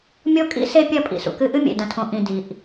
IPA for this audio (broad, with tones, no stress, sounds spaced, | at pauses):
mʲ o˦ kʼ ḭ˦ s e˦ pʲ ɐ˦ pʼ ḭ˨ s ṵ˨ k ɨ˦ ʔ ɨ˦ mʲ ḛ˨ d ɐ̃˨ tʰ õ˨ ʔ ĩ˨ d i˨ ʔ